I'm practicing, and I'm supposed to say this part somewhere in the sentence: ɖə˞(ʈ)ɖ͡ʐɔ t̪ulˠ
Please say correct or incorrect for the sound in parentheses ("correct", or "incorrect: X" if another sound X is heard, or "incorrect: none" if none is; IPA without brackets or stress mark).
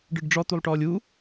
incorrect: ɖ